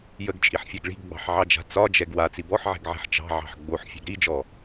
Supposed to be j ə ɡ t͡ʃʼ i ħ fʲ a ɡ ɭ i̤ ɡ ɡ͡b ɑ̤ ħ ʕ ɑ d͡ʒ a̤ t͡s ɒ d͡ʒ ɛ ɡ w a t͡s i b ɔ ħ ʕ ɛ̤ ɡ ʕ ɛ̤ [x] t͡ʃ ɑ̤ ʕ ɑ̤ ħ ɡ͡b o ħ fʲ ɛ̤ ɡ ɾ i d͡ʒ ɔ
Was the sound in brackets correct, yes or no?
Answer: no